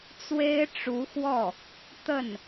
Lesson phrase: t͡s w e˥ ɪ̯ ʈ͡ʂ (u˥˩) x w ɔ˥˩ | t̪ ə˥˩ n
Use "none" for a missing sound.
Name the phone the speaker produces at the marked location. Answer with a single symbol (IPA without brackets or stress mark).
u˧˥